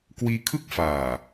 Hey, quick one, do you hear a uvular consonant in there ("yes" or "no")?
no